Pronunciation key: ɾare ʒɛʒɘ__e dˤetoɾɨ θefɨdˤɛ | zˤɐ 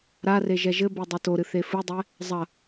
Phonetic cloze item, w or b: b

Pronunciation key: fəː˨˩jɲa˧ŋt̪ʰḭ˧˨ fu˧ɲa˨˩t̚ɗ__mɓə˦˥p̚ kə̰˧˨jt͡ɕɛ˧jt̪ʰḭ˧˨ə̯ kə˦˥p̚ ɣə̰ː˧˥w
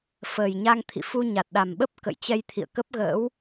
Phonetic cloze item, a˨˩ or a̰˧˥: a˨˩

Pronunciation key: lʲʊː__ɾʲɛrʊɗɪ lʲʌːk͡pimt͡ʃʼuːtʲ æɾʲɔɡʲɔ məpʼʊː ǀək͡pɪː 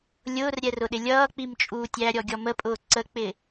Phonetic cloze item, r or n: r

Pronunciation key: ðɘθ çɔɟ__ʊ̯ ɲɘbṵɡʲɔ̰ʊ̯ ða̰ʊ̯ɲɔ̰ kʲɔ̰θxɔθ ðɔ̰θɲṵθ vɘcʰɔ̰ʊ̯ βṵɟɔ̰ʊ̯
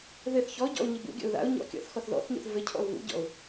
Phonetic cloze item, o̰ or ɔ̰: ɔ̰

